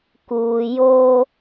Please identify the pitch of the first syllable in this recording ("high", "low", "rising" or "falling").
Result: low